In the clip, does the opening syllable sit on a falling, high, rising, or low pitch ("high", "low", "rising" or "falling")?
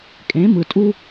rising